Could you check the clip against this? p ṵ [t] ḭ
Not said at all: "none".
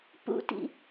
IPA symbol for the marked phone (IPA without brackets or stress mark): t